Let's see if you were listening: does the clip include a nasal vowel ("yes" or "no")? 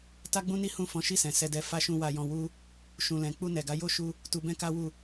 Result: yes